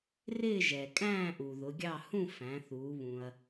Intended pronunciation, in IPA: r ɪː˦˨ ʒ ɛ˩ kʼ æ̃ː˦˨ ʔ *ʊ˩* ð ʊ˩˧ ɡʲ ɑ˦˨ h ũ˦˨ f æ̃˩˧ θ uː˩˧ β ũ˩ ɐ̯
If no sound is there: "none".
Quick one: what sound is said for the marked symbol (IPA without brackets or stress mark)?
u˩